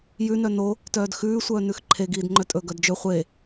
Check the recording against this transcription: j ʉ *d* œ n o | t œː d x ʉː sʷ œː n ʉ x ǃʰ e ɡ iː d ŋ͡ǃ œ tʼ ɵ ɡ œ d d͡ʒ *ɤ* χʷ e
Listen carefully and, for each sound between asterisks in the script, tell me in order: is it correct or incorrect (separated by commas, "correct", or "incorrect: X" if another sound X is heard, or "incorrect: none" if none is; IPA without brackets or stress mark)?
incorrect: n, incorrect: ɵ